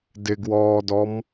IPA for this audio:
d ɪ ɡ w ɔː d ɔ m

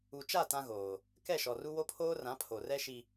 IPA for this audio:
u˨ t͡ʃ a˦˨ t ã˦ ɣ oː˨ | k ɛ˦˨ ʃ ɔ˨ r u˦ w o˦ pʰ oː˦ r ã˨˦ pʰ o˨ r ɛ˦ ʃ i˨

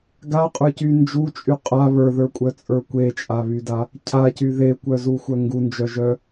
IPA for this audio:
ɡ a qʼ ə˞ c y n d͡ʒ u t͡ʃʼ y qʼ a β ə˞ ð ə˞ kʷʼ œ t͡sʼ ə˞ kʷ e t͡ʃʼ a β y d a | cʰ a c y ð e kʷ œ z u xʷ œ ŋ ɡ u n d͡ʒ œ ʒ œ

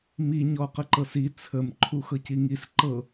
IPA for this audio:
m i ɲ ɔ q ə ǃ ɤ s i t͡sʰ ə m ǃʰ u x ɤ c i ŋ i s ǃ ɤ

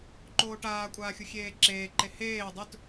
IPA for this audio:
ǃ oː ʈ aː kʷʼ aː xʲ u xʲ eː ǁ eː ǃ e h eː dˤ ɵ t

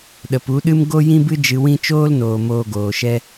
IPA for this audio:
ɗ ə˨ p u˨˦ ɗ ɨ˦ m ɡ o˦ j ĩ˦ b ɨ˦ d͡ʒ ɨ˧ w ĩ˦ t͡ʃ oː˦ l n oː˨ m oː˧ ɡ oː˨ ʃ ɛ˦

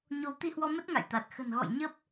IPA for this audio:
ɲ o˨˦ w t̪ i˧ h w ɔ˧ m ə˦˥ t̚ ŋ a̰˧˨ j t̪ a˨˩ t̚ x ə̤˨˩ n ɣ ɔ̰˧˨ j ɲ ə˦˥ p̚

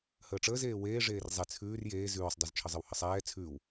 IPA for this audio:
h əː ʈ͡ʂ əː z eː w eː ʐ eː r zˤ e t͡sʰ ʉː r j eː z ʉː sˤ dˤ e z t͡ʃʰ ə zˤ ə w h ə sˤ ɛː t͡sʰ ʉː w

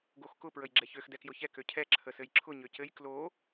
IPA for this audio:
ɡ o x k ʊ p ɹ ə j ɡ͡ǁ ɛ ç ø x d ɛ k j ʊ ç ɛ k ø cʰ ɛ ǁʰ ə s ɘ j ǁʰ ʊ ɲ ø c ɘ j k l o

